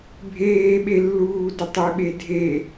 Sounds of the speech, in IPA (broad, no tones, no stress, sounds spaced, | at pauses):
bʱ eː ɓ e lː uː d ə tˤ e ɓ e dʱ e